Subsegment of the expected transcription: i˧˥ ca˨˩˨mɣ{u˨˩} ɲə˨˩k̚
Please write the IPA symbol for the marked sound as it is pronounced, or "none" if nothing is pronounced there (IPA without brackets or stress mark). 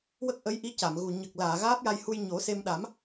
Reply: u˨˩